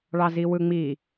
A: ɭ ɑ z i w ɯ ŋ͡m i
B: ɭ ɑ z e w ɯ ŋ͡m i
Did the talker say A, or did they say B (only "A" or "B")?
A